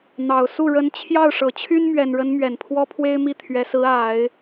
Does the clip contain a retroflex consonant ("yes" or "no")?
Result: yes